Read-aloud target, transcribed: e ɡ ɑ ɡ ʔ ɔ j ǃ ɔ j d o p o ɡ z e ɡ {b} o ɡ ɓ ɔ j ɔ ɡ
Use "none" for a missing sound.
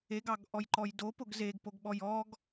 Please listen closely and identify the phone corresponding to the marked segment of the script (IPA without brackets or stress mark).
p